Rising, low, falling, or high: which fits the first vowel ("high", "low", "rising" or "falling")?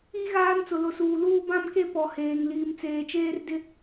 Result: high